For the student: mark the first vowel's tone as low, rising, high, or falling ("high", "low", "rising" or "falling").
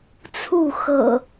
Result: falling